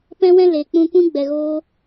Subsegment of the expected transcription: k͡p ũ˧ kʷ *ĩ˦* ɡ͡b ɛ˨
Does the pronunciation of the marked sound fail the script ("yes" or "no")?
no